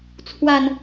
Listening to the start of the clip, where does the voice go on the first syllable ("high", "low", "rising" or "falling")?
low